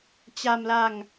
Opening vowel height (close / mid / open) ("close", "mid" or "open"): open